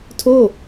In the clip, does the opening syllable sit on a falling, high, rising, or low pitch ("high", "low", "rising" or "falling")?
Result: falling